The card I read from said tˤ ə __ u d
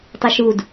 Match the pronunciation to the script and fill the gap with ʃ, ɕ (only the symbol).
ʃ